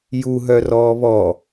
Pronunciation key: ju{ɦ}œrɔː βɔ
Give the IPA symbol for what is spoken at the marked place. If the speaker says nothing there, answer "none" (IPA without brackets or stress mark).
ɦ